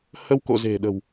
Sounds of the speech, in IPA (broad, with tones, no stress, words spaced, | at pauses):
hə˧wko̰˧˨ ze̤˨˩ɗə̤˨˩w